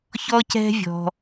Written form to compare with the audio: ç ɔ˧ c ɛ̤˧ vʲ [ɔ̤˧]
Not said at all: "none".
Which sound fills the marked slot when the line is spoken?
ɔ̤˧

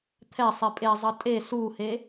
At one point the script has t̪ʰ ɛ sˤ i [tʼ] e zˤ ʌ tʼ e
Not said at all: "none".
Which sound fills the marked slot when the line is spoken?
pʼ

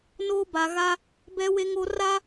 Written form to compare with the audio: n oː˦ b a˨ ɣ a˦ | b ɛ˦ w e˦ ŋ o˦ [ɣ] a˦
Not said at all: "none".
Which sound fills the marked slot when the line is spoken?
r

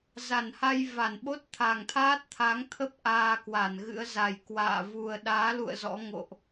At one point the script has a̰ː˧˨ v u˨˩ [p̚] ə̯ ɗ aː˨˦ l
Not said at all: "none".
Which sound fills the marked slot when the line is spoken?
none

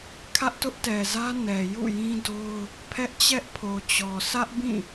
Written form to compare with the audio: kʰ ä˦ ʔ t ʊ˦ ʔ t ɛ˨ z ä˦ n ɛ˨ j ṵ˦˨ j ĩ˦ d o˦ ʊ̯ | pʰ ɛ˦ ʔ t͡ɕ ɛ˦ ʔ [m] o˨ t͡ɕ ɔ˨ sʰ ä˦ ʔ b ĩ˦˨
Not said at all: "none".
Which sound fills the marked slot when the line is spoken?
pʰ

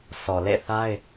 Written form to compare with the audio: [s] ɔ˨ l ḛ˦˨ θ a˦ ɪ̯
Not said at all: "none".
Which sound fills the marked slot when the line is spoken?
s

